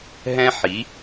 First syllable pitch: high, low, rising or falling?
high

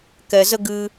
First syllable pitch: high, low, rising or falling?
low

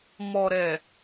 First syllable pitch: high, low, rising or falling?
low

